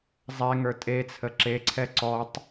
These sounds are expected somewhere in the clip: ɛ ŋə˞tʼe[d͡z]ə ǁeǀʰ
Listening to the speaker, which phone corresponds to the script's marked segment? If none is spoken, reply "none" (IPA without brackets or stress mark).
t͡sʰ